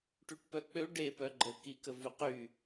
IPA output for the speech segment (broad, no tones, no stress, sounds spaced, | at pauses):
ʈ y ʈ p œ k͡p ø ɖ e p œ ɡ͡ǃ ə k i k ə v y q y